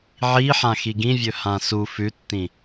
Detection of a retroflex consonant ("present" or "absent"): absent